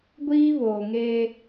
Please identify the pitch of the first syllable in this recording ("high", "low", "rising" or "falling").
high